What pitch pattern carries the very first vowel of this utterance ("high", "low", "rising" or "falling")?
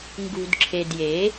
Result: low